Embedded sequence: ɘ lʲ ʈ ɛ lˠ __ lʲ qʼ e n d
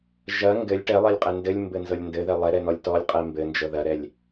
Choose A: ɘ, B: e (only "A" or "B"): B